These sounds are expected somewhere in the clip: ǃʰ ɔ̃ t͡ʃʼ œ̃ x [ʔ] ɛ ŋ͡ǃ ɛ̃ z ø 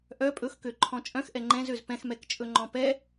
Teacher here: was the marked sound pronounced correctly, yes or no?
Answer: yes